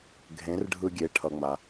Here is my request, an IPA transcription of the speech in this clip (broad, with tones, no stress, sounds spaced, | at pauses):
ɡʱ ẽ˩˥ r ɖʱ ɯ˧ ɡʲ e˩˥ ʈʰ ʌ˩ ŋ͡m a˩